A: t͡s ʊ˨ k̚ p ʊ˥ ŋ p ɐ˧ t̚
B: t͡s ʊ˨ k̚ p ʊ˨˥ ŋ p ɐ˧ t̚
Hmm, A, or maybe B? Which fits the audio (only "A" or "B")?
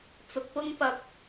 A